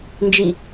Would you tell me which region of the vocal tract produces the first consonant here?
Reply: tongue tip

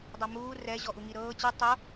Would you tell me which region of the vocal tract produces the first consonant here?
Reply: tongue tip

